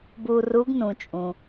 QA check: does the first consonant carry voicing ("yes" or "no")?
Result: yes